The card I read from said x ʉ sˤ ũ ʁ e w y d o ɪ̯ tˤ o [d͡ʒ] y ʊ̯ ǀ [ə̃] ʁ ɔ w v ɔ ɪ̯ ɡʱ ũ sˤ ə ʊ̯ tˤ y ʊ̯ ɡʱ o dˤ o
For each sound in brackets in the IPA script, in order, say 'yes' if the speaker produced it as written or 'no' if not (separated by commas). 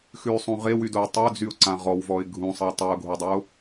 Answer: no, no